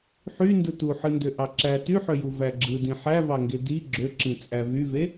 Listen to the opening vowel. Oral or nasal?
oral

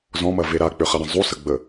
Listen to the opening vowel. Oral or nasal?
nasal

